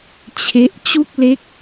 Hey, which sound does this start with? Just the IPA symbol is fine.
t͡ɕʰ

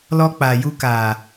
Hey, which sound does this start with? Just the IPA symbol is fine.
l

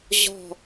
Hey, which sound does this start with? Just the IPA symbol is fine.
ʑ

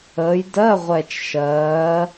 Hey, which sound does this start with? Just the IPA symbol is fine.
əː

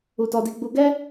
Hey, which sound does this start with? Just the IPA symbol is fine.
u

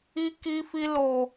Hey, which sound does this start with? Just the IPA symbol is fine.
i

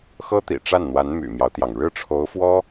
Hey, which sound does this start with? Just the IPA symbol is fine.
x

